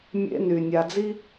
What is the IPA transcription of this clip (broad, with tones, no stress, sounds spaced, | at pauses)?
mʲ ḛ˦ n y˨ nʲ a˨ d͡z i˦